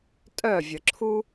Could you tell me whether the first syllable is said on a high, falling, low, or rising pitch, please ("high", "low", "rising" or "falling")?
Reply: falling